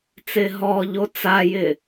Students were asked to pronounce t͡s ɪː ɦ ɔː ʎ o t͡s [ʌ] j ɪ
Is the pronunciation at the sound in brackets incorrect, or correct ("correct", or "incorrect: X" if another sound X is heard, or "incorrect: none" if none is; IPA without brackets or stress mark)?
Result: incorrect: a